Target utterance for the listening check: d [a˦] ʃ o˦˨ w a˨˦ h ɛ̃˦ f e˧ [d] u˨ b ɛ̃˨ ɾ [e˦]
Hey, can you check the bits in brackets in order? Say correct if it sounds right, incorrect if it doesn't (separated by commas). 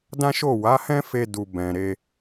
incorrect, correct, incorrect